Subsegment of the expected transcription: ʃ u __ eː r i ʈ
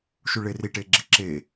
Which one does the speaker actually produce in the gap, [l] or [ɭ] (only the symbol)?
ɭ